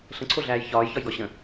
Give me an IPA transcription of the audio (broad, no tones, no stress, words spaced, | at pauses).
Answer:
ɬə̃ǀʰoɮæːj çɒːjçɒjɡɒ ɕə̃